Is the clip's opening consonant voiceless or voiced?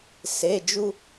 voiceless